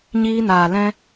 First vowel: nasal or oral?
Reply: oral